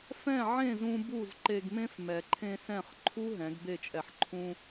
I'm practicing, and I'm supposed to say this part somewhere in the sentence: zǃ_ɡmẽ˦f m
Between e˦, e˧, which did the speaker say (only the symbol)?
e˧